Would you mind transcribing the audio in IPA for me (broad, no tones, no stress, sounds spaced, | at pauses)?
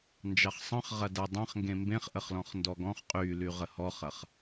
n d͡ʒ ɑ χ sˤ ə̃ χ ʁ ɐ d ɐ dˤ ɐ̃ χ ŋ ɡ ẽ m b ẽ χ ʔ ə χ l ɔ̃ χ n d ɔ ɡ ɔ̃ χ qʼ y l y ʁ ə h ɔ χ ɐ χ